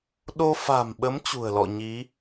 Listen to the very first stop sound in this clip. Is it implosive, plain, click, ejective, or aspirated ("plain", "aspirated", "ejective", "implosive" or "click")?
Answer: implosive